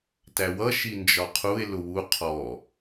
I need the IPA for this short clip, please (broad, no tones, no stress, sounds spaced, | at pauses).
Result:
t æ w ʌ ʃ i n d͡ʒ ɒ qʰ u e̯ l ʊ w u qʰ ɔ